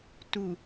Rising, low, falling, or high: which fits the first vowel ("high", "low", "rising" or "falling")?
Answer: low